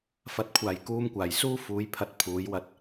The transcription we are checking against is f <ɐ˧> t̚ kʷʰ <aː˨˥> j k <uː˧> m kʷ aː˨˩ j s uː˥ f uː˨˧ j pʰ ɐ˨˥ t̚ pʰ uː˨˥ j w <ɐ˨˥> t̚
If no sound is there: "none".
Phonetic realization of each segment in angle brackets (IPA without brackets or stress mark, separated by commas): ɐ˨˥, aː˨˩, uː˥, ɐ˧